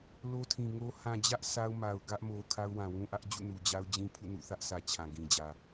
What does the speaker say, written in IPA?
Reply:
lo˦tʰĩ˨ŋo˦ hã˨d͡ʑä˦ʔ sʰa˦ʊ̯ma˨ʊ̯ ɡä˦ʔmo˨ kʰa˦ʊ̯wã˨wũ˦ʔä˦ʔ d͡ʑṵ˦˨nu˨d͡ʑa˦ʊ̯d͡ʑĩ˦ pʰṵ˦˨nṵ˦˨θä˦ʔsʰä˨ t͡ɕʰã˨ɡĩ˨d͡ʑä˨

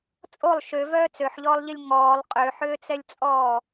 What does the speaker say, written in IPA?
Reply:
t͡sʼolˠ ʃøvœː t͡søħʎɔːlˠʎilʲ ŋɔːlˠ qʼøħʏːt͡sɛlʲt͡sʼɔː

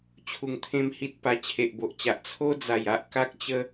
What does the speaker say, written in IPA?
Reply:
t͡ɕʰu˧ŋt̪ʰẽ˦mhi˦t̚ pa˧t͡ɕʰe˨ʔbo˨ʔt͡ɕa˨ʔ t͡sʰo˦d͡za˨˩ja˦ʔ ka˦k̚t͡ɕə˦

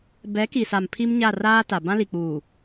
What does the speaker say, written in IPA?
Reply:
bɛ˨˦ki˨sa˨m pʰi˦mɲa˦˨ raː˦ta˨ bã˦li˨k͡puː˨

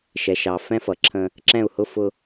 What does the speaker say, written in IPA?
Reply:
ʃɛ˨ ʃɑ˨ fɛ̃˦fʌ˨ ǁʰə̃˦ | ǁɛ̃˦˨u̯hʊ˦ fʊ˦

